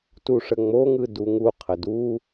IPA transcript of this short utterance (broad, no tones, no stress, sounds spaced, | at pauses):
t u ʂ ə ŋ͡m o ŋ ɯ d u ŋ u qʰ ə d u